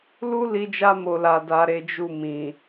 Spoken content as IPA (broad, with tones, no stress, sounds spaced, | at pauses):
l u˦ l i˧ d͡ʒ a˧ m o˨ l a˨ d a˨ ɾ e˨˦ d͡ʒ u˦˨ m ĩ˨